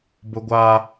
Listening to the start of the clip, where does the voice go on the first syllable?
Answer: high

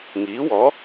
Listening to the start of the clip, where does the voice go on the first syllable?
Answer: rising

